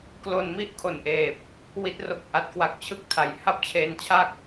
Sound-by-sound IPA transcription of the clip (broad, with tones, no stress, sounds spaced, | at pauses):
k l o˧ n m i˥˩ ʔ kʰ o˨˩ n ʔ eː˨˩ p̚ | w i˦˥ t̚ r o˦˥ k̚ ʔ a˨˩ t̚ k w a˦˥ k̚ t͡ɕʰ ɯ˥˩ k̚ tʰ a˨˩ j h a˥˩ p̚ t͡ɕʰ eː˧ n t͡ɕʰ a˥˩ k̚